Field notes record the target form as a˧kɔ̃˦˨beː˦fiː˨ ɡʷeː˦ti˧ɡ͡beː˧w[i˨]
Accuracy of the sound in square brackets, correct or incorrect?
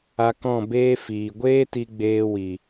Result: correct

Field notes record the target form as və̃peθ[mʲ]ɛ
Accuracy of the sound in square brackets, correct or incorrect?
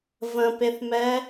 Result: incorrect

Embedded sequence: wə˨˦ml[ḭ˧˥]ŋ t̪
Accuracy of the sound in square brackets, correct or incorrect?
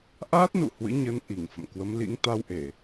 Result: correct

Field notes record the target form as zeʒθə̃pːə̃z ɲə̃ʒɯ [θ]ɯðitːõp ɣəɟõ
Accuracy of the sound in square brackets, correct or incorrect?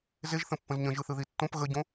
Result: correct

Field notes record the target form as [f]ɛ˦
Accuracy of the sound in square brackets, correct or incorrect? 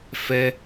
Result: correct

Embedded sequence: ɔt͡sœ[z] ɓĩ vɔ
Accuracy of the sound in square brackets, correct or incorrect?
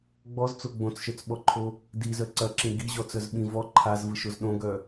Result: correct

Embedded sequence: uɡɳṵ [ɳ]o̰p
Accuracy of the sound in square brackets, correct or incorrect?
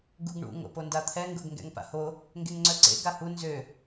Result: incorrect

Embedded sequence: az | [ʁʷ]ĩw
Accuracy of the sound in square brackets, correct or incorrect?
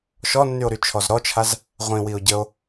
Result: correct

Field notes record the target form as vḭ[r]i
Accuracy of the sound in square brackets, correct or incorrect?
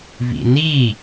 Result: incorrect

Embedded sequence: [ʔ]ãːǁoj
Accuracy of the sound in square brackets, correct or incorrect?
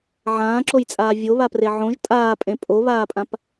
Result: incorrect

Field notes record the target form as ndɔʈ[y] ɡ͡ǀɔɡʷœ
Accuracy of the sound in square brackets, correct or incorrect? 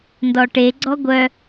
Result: incorrect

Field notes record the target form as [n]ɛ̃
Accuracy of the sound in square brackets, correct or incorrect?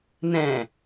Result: correct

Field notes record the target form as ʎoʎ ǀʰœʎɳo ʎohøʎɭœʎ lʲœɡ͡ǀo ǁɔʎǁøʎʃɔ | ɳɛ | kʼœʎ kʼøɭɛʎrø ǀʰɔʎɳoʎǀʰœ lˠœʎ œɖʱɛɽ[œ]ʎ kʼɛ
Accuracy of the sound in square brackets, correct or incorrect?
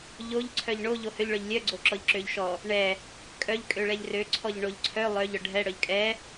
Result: correct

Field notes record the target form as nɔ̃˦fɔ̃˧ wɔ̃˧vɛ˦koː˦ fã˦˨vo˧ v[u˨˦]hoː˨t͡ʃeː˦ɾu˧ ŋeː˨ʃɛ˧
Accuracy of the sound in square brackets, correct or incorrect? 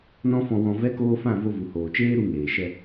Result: incorrect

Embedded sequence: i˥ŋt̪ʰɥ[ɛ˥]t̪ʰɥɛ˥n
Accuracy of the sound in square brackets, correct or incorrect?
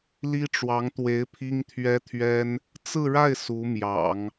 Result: correct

